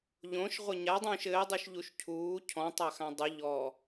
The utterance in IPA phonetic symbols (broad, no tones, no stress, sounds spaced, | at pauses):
ʎ õ ʃ ʁʷ ɘ ɲ a dˤ ũː ʃ ɘː dˤ u ʃ ʎ u ʃ cʰ uː cʰ ɔ̃ tˤ a x ã dˤ ɨ ʎ ɔ